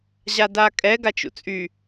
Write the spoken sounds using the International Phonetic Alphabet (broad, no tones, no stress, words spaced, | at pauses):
ʑadakʼɛ ɡat͡ʃṵt͡sʼy